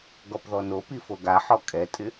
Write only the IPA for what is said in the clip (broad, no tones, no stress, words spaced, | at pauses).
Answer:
ɡɔpðɔnopi foɡaħɔ kʼɛtʼɪ